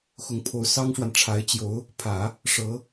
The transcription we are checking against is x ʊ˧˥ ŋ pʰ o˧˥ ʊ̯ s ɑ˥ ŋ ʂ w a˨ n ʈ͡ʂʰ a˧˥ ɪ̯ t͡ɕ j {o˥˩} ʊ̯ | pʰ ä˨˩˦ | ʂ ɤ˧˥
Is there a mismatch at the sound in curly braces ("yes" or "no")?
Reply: yes